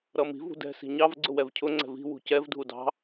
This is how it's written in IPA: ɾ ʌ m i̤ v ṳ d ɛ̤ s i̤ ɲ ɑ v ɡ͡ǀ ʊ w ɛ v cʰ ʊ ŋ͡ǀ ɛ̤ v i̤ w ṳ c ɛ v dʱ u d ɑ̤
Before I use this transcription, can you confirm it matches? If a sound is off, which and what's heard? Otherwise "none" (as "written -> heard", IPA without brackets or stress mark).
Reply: none